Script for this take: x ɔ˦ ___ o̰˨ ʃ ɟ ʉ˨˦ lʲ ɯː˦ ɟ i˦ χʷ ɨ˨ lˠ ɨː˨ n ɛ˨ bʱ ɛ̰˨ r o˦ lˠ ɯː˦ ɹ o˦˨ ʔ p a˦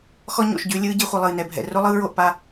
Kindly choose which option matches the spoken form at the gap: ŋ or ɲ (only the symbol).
ɲ